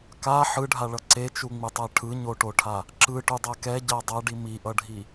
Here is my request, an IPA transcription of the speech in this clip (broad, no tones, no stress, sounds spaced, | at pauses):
k a ħ ɯ ɖʱ a ɭ ʌ ǀ e t͡ʃ u ŋ͡m ɯ tˤ a ʈʰ ɯ ɲ o ʈ o ʈʰ a | ǁ ɯ ʈ u dˤ a k ɛ ɟ a dˤ a ɖ i m i ʔ ʌ ɖʱ i